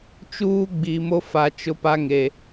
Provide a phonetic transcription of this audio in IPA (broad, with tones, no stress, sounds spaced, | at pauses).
t͡ʃ uː˦ ɡ͡b i˨ m o˦ f a˨ t͡ʃ ʊ˦ p a˦ ŋ e˨